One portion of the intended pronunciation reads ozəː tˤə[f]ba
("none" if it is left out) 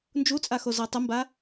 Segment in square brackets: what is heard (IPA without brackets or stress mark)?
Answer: m